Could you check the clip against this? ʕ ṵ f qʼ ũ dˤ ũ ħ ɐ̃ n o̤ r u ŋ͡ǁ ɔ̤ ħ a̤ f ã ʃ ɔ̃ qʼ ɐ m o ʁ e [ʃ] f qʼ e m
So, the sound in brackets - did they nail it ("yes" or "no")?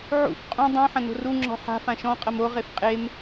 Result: no